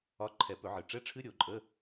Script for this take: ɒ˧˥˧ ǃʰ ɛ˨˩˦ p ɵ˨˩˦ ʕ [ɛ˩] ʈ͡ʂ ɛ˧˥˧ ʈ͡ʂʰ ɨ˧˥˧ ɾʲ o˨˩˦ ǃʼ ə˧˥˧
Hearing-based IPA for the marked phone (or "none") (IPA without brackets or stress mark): ɨ˩